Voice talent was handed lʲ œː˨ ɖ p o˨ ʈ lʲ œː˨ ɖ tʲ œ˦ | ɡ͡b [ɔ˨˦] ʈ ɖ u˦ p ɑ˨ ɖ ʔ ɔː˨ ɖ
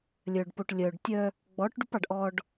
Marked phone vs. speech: correct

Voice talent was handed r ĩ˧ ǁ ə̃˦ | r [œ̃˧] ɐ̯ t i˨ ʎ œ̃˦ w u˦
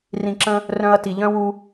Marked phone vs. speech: correct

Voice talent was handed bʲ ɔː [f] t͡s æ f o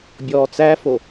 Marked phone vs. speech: incorrect: none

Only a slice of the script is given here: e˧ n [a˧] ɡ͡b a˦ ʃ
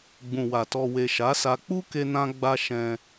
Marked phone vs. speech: incorrect: ã˧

